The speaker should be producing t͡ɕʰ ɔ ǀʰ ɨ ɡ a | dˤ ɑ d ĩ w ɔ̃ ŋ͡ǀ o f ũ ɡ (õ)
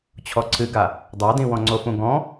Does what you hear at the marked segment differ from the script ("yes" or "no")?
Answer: yes